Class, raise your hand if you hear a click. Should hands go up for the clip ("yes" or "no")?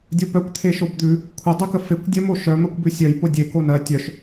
no